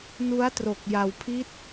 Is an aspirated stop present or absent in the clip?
present